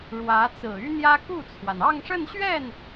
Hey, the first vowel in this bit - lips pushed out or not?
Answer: no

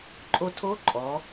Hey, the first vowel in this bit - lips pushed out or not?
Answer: yes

